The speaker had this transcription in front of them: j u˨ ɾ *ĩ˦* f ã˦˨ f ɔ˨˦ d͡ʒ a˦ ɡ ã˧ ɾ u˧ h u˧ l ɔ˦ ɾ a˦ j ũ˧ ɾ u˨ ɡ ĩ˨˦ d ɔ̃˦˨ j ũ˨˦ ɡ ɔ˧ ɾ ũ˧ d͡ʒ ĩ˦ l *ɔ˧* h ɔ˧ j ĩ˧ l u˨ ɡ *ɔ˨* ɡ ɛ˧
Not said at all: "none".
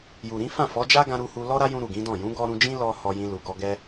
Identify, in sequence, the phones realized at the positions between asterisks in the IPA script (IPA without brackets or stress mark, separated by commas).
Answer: ĩ˨˦, ɔ˧, ɔ˧